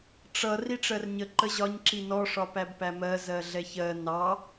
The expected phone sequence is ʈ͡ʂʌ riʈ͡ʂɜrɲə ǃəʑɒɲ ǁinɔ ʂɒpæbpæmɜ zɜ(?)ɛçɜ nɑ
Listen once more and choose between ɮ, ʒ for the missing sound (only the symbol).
ɮ